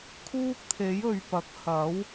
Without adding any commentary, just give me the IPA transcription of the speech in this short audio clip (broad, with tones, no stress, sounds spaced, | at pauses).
kʰ uː˥ k̚ t̪ʰ e˨˥ j ɵ˨ ɥ p ɐ˨˥ k̚ h ɐ˨˥ w